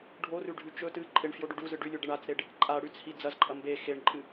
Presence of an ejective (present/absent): present